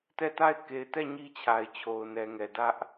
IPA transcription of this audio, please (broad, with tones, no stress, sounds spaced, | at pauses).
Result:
t ɛ˦˨ t a˦˨ ɪ̯ k e˨ ɪ̯ t ɛ˦˨ ɲ i˦ t͡ɕʰ a˨ ɪ̯ t͡ɕʰ o˨ ʊ̯ n ɛ˨ ŋ ɛ˨ d ä˦ ʔ